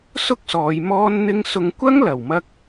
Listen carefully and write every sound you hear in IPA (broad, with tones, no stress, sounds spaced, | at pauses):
s ʊ˥ k̚ s ɔː˨˧ j m ɔː˥ n n̪ ɪ˥ ŋ s ʊ˧ ŋ kʷ ɐ˥ ŋ l ɐ˨ w m ɐ˥ k̚